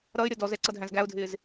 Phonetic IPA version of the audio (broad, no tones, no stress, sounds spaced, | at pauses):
ɾ ʌ ɪ̯ ɾʲ ʌ d ɔ z ɛ ǀ ʌ dʱ æ̃ z ɡ æ ʊ̯ dʱ ɪː z